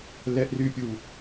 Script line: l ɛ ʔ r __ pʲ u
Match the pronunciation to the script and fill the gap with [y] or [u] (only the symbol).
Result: y